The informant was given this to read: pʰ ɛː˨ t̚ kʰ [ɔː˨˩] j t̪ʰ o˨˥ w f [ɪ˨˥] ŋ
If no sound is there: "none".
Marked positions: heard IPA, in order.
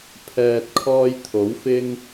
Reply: ɔː˧, ɪ˥

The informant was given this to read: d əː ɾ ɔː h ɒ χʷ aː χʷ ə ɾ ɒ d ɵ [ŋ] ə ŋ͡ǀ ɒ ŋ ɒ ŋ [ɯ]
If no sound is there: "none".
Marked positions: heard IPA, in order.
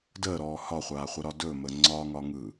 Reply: m, ɯ

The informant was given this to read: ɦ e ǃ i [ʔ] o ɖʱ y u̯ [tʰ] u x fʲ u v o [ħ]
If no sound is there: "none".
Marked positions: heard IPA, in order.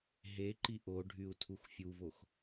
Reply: ʔ, tʰ, x

